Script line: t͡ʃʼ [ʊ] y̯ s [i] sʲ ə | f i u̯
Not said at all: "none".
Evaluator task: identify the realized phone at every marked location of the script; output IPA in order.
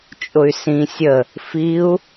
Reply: ʊ, ĩ

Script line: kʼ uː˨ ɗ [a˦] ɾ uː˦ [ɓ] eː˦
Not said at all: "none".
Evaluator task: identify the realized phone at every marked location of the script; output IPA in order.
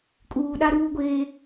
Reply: a˦, ɡʷ

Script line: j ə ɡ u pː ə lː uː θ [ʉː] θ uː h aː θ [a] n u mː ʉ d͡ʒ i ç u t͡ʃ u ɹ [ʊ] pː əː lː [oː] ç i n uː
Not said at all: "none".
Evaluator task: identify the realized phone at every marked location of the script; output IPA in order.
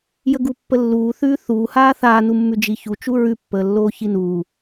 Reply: ʉː, aː, ʉ, oː

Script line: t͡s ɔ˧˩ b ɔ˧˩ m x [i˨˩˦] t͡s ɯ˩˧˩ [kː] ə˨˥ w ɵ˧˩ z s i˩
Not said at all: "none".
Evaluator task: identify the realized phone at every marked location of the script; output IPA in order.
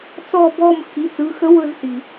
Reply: i˩˧˩, x

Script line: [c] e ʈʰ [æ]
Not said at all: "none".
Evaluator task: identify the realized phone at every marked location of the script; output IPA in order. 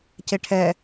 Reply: c, ɛ

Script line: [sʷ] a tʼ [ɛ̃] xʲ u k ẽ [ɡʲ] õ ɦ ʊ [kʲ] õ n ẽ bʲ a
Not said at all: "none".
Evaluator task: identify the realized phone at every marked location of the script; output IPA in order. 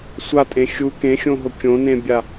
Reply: sʷ, ẽ, xʲ, kʲ

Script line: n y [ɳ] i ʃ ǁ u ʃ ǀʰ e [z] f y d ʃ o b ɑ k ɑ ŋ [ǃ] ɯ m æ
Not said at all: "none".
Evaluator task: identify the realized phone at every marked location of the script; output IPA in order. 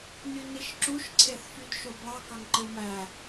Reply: n, θ, ǃ

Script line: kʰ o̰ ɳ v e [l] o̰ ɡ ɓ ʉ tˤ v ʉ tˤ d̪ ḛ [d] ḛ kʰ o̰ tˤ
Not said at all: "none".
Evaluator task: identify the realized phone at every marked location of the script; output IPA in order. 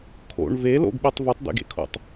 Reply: l, ɡ

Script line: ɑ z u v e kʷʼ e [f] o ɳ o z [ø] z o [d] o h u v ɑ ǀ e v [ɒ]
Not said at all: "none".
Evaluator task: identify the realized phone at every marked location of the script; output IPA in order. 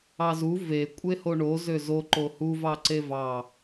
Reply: h, ø, ǃ, ɑ

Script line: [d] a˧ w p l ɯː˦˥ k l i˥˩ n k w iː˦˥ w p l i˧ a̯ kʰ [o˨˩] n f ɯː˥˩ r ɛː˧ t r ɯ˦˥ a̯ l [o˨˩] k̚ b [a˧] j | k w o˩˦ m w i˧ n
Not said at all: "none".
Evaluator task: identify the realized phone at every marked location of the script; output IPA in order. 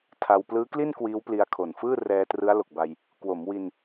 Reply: tʰ, o˨˩, o˨˩, a˧

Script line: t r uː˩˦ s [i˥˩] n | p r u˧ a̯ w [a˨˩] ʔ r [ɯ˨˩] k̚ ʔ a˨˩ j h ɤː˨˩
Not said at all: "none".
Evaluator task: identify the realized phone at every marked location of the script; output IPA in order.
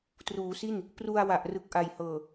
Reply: i˥˩, a˨˩, ɯ˨˩

